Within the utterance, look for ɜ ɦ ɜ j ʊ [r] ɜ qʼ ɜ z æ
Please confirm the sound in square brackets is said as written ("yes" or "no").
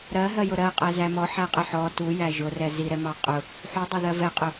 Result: no